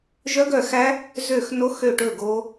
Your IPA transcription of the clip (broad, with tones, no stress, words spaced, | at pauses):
ʒœ˦˥ɡœ˦˨xæ˦˥ | zø˦˨x no˦˥xø˦˨ʈɵ˦˨ ɡo˦˥